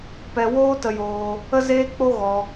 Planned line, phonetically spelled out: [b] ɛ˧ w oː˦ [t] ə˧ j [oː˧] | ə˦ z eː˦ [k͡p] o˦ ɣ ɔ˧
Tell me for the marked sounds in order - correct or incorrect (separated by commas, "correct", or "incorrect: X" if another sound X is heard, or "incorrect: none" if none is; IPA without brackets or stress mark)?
incorrect: p, correct, correct, correct